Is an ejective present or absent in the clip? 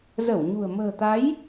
absent